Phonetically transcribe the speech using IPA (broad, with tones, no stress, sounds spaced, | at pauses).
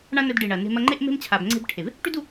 ɳ ã˦ n ɵ˧ d ɖ i˨ ɳ ɐ˨ n e̤˧ m ɐ˧ ŋ͡ǃ e˦ ʔ m e̤˦ m t͡ɕʰ a˨ b ŋ͡ǀ e̤˦ b ʈʰ e˨ v | ʈ ʉ˦ d u˧